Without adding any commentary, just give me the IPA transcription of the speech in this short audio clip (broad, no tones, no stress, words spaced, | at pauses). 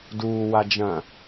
duːwa d͡ʒɐ̃